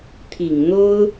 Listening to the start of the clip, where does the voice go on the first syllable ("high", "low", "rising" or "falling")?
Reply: low